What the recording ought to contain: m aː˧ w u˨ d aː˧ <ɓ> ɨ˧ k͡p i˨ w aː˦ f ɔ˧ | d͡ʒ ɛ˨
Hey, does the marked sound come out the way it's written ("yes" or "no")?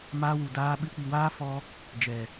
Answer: yes